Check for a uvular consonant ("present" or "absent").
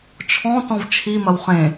present